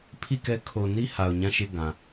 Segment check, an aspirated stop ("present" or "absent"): present